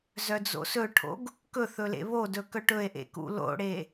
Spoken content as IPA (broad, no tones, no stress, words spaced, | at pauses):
zœd͡zo̰sɵʈʰo̰ɡ | kɵθɵ lḛβodɵ kœʈɵe̯ʔḛ kṵlo̰ɽe